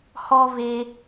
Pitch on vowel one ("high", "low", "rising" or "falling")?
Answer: high